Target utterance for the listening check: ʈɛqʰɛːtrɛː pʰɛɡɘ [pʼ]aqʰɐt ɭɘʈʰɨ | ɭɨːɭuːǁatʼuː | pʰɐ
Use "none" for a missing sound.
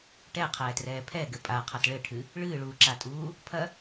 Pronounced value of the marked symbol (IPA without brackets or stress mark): pʼ